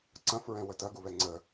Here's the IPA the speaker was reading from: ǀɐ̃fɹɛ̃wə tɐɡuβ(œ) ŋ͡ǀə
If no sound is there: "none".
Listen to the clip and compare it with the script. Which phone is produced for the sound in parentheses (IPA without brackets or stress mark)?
ɛ